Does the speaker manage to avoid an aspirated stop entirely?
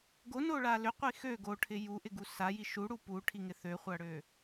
no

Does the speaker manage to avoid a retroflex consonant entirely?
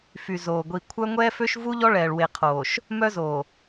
no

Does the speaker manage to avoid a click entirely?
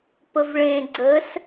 no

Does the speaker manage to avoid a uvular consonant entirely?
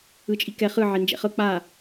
no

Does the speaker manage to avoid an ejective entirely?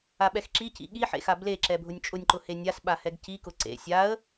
no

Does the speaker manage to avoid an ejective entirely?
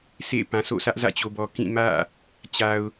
yes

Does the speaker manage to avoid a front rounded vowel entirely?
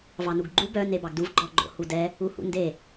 no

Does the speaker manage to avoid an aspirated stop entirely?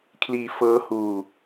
no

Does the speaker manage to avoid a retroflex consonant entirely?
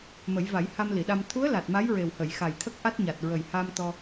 yes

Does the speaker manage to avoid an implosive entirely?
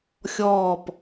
yes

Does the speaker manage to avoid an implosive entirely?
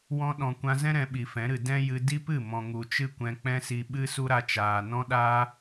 no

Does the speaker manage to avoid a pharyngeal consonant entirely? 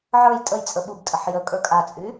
no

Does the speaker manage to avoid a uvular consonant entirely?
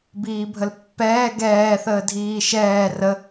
yes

